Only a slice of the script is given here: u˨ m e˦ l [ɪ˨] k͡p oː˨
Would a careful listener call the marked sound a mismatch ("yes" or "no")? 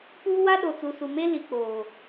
yes